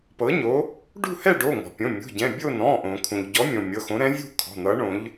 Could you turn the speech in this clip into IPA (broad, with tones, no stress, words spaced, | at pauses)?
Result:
pɤ˨˥ɲo˨˥ | ɖṳ˥˧hɛ˥˧ ɖo˩˧˩ ŋɔ̤˩pʲõ˩˧˩ mʲṳ˩˧˩ɟɛ̃˩˧˩bʲo˥˧ nɔ̃˩˧˩ʔõ˩ kʰũ˩ʎɟɔ˨˥mʲõ˩ mʲɤ˩˧˩xõ˨˥ ɾɛ̃˨˥vʲṳ˥˧ kʰɔ̤˩˧˩n̪ʌ˨˥ ɳõ˨˥ʎ